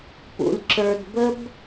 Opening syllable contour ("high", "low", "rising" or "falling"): low